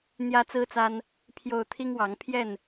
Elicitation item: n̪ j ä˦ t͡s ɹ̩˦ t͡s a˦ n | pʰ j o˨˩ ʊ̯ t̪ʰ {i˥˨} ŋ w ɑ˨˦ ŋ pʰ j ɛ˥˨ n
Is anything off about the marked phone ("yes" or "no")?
yes